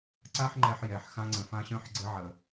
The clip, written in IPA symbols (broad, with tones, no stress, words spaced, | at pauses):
ǀa˥ħŋ͡ǃɛ˧ħ jɛ˩ħ xã˧ŋ͡ǀə̃˩fã˧ɕœ̃˧ħ ɡ͡ǀɘ˧ʕə˩